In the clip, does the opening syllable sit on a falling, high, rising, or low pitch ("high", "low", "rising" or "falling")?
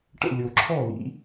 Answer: falling